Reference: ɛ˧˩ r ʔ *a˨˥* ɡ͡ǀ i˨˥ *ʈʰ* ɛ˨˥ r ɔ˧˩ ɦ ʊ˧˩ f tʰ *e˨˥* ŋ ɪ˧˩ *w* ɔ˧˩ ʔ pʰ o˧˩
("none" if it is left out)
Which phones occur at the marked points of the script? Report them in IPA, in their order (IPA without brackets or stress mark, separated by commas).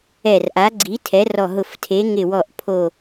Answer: a˨˥, tʰ, e˨˥, w